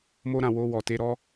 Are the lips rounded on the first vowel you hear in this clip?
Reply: yes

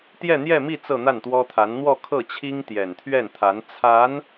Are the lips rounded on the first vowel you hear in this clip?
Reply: no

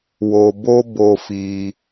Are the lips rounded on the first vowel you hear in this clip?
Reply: yes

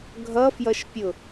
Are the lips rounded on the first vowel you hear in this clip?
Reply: no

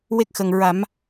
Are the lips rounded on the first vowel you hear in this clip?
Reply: no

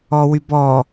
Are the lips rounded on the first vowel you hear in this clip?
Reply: yes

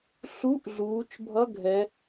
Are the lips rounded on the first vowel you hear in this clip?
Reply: yes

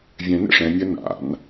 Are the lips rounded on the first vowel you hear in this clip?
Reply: no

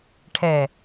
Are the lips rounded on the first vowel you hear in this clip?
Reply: no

